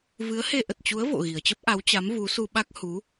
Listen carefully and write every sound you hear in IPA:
v ɨ˨˦ ə̯ h e˧ ʔ ə˨˩ t̚ t͡ɕ u˨˦ ə̯ v o̰˧˨ ɣ i˨˩ ə̯ t͡ɕ ə˦˥ p̚ ʔ a˨˦ w t͡ɕ a˨˦ m v u˨˦ s u˧ ɓ a˦˥ k̚ h u˨˦

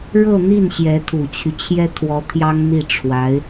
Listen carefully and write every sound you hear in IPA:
ɻ ɤ˥˧ n̪ i˥˩ n ɕ j ɛ˧˥ t̪ʰ u˨˩ t͡ɕʰ y˦ t͡ɕʰ j ɛ˥ t̪ʰ w ɔ˧˥ t̪ʰ j ɑ˥ ŋ n̪ i˥˩ ʈ͡ʂʰ w a˧˥ ɪ̯

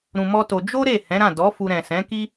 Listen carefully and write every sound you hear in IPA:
ɾ ũ˧ m ɔ˦ t o˧ d͡ʒ o˦ ɾ e˦˨ h ɛ̃˨˦ ɾ ã˦˨ d ɔ˨˦ f u˧ ɾ ɛ̃˨ s ɛ̃˨˦ k i˦

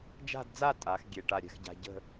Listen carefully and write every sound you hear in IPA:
d͡ʒ a̤˥˧ d d͡z a˥˧ tʼ a˩˧ x ɡʲ e˧˩ ʈ a˧˩ ɾʲ ɛ̤˧ x ɟ a̤˧ ɟ ə̤˥˧

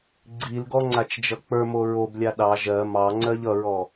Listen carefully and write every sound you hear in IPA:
ɡ͡ǀ i l ɡ ɔ ŋ͡ǀ a t͡ʃ d͡ʒ ʌ k͡p ə˞ m o ɹ o b lʲ a ɗ ɑ ʒ ɜ m ɑ ŋ͡ǀ ɜ ʎ ʌ ɹ ɔ

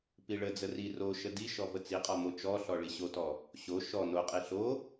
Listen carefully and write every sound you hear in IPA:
p i ɭ ə d͡z ə r i r o ʃ ə d i ʃ ɔ v ə t͡s i qʼ ɔ m o t͡ʃ ɔ ɬ ɔ ɭ i ɕ o t ɔ | ɕ o ʃ ɔ n o qʼ i ɬ o

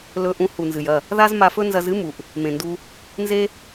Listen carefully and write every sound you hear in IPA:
l ɵ˧ ʔ ũ˧ h u˨ n z ɨ˨ j ɐ˦˨ | ð a˦ z m a˧ f ɵ˦ n z ɐ˧ z ɨ˦ m u˨ ʔ | m ẽ˨ n d u˧ | n z e˦

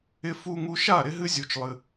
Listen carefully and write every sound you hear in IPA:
ɪ˧ f u˧ ŋ u˧ ʃ a˦˨ ɾ ɪ˦ ɦ ɨ˦ zʲ u˧ t͡ʃ lˠ ɨ˧

